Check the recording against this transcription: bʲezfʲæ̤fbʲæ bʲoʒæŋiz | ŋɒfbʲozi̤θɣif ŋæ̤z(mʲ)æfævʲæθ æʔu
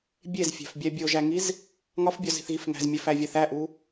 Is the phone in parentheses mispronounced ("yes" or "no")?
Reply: no